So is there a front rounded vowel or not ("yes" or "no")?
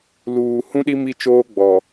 no